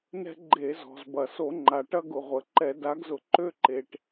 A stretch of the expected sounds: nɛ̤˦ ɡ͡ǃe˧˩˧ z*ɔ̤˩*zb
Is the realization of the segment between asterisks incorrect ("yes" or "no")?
no